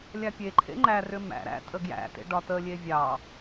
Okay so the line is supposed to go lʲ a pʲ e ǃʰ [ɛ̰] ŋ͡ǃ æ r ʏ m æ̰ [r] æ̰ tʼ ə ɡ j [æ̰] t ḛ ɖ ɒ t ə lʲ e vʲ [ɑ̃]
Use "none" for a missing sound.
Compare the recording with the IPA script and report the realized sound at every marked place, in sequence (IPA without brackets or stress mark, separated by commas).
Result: ḛ, ɾ, æ̰, ɑ